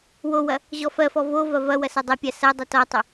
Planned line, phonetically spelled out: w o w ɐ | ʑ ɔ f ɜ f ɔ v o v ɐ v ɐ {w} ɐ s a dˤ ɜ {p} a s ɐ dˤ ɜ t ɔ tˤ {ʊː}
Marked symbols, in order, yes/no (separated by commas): yes, no, no